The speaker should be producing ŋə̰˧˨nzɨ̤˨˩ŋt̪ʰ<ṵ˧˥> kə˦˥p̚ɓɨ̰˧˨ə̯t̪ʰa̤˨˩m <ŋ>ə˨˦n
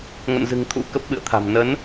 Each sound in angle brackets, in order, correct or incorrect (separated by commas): correct, incorrect